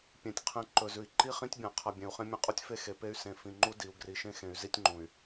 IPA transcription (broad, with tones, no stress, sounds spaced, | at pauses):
pʲ ẽ˨ tʲ qʰ ẽ˨ ǃ ɵ˨ z ʉ˨ i̯ ǃ i˦ χ ĩ˦ tʲ bʲ ã˨ qʰ ɐ˨ bʲ ẽ˨ u̯ χ ẽ˦ mʲ ɐ̃˦ qʼ u˦ tʲ f e˦ x e˨ p e˦ y̯ s ẽ˨ f ĩ˨ ŋ͡ǃ u˦ d i˨ u̯ ɡ r i˨ ʃ ẽ˦ x ẽ˨ y̯ z i˦ tʲ ŋ͡ǃ ũ˨ y̯